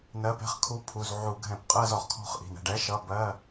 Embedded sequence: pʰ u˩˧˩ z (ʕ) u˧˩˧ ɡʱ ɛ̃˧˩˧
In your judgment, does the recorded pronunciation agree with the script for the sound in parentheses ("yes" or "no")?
yes